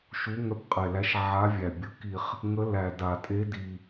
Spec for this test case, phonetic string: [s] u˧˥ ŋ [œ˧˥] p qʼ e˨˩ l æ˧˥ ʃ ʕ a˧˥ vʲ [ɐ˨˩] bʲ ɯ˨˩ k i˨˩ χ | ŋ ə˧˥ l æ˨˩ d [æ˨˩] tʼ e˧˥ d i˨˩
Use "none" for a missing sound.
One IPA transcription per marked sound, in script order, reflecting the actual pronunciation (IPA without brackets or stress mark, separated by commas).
ʃ, œ˧˥, æ˨˩, a˨˩